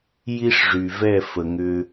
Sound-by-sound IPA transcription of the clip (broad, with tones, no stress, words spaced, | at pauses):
ji˦ʂʐy˨vɛ˦˨ fə˨ŋʏ˦